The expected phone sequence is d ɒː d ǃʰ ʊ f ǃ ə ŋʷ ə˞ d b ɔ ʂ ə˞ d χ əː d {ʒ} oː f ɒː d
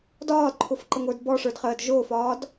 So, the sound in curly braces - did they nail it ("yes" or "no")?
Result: yes